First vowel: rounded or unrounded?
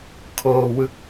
rounded